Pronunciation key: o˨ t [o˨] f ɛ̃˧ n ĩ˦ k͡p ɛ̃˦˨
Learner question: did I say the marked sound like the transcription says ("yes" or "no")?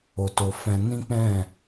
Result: yes